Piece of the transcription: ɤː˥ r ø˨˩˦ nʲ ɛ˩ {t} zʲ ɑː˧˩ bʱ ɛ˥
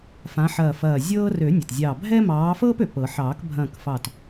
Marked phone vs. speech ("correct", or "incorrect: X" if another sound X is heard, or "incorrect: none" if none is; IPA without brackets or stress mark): correct